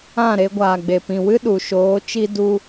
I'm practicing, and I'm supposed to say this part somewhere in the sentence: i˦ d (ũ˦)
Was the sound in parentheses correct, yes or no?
no